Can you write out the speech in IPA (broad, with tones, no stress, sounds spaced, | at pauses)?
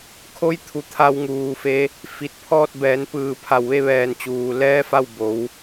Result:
kʰ o˧˥ j t̪ʰ u˩˧ t̪ʰ a˧ w ŋ uː˩˧ f e˧˥ | f i˧˩ t̚ pʰ ɔː˥˨ t̚ b ɛː˩˧ n p ɯː˧˩ pʰ a˧˩ w ʋ e˥˨ ʋ ɛː˧˩ n t͡ɕ uː˩ l ɛː˧˥ f a˥˨ w b o˩˧ w